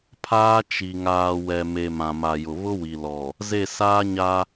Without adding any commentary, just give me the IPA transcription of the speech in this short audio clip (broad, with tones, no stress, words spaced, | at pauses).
pʰaː˦t͡ʃi˨ ŋaː˨ wɛ˨me˨ mã˨ma˨jʊ˨ βʊ˦wi˨ lɔ˨ | ze˦˨saː˦ɲa˦